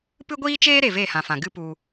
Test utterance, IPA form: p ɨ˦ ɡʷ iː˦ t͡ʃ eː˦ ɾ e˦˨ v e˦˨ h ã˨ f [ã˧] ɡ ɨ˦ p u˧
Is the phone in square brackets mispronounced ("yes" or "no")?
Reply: yes